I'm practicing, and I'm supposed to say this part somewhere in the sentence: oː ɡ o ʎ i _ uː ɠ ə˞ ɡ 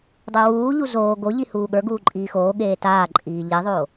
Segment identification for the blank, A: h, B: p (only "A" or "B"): A